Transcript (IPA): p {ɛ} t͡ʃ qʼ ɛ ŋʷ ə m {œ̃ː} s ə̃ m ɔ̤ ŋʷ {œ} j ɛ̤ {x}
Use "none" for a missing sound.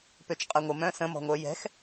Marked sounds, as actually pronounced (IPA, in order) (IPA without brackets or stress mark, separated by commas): ø, œ̃, œ, x